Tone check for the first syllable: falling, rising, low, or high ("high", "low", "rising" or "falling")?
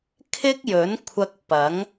high